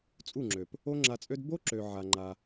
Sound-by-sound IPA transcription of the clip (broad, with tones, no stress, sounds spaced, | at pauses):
t͡sʼ u˦˨ ŋ͡ǁ ø˨ p | o˦ ŋ͡ǁ a˧ t͡sʼ ø˦ d b o˦ ǁ ø˨ ʕ a˨ ŋ͡ǃ a˧